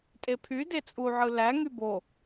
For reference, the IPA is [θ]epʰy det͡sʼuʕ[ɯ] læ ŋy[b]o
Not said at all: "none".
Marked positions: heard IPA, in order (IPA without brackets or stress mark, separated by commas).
tʼ, ɯ, b